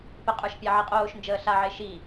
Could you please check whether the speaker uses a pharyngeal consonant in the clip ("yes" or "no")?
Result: yes